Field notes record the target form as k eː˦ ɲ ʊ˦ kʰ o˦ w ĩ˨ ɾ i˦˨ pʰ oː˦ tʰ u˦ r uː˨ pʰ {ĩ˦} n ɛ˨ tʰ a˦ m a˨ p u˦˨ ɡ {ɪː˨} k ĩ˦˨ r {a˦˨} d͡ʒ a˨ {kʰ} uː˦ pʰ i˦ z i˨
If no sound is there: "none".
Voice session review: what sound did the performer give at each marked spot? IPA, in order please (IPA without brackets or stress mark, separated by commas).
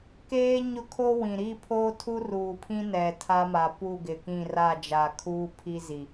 ĩ˦, ɪ˨, a˦˨, kʰ